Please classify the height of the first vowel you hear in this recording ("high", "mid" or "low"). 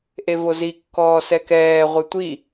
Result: mid